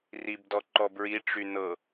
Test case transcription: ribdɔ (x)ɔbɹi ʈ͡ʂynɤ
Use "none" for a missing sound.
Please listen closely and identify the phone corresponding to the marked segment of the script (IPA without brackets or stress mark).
ǃ